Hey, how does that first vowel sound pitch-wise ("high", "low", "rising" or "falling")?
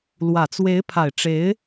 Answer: low